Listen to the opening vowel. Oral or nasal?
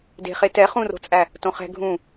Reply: oral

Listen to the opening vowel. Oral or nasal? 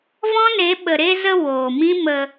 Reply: nasal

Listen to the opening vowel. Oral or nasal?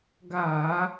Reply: oral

